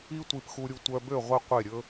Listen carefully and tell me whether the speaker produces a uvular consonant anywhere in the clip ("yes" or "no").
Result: yes